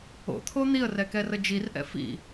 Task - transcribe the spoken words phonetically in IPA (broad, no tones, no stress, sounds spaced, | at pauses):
o̰ t̪ʰ o n̪ i ə̯ r ɛ k ɛ r ə d͡ʒ i r ʔ ɛ̰ f ḭ